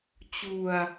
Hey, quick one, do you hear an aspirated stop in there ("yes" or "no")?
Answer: no